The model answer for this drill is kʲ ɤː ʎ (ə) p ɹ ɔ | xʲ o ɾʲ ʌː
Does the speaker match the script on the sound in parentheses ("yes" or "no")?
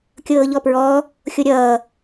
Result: no